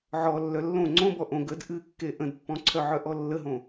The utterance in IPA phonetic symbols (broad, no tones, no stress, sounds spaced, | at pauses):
ʕ ɔ lː œ lː õ ŋ͡ǀ õ b ɔ ʔ õ ɡ ə d ʔ ɨ kː e ʔ ə̃ d pː ɔ̃ ǀʰ œ ʕ œ ʔ ɔ lː ə ɦ õ